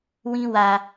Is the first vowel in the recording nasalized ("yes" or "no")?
yes